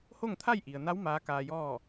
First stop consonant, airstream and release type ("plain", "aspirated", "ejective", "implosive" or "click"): aspirated